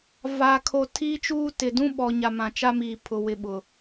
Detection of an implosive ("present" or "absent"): present